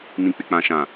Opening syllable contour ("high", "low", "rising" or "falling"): low